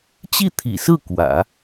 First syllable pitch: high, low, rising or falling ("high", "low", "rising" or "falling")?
falling